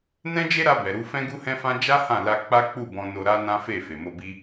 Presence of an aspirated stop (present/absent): absent